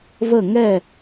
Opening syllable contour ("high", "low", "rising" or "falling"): falling